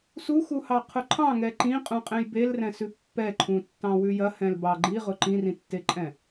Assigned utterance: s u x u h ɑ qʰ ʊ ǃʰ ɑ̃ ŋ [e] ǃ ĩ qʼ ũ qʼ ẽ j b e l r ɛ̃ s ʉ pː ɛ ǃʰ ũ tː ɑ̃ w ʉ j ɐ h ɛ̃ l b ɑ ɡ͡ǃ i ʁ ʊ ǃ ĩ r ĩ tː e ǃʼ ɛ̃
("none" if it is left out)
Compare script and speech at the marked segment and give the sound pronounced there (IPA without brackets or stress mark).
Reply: ɛ